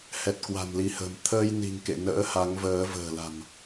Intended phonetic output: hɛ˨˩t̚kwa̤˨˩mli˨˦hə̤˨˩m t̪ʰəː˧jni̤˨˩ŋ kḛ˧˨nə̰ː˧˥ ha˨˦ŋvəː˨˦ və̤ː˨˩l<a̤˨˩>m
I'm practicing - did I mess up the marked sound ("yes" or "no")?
no